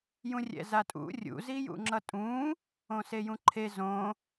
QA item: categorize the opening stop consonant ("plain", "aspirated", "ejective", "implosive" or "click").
ejective